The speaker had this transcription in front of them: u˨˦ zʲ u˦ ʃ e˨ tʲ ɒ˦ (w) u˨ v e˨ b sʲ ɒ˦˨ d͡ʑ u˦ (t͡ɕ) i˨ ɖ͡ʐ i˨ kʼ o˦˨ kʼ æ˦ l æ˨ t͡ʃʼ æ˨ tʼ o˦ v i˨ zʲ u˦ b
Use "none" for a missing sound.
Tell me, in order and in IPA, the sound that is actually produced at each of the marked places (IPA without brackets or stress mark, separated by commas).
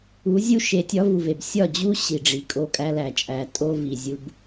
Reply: v, ɕ